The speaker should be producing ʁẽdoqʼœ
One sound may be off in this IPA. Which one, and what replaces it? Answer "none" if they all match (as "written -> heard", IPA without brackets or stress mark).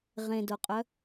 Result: none